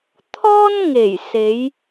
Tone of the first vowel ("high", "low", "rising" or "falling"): high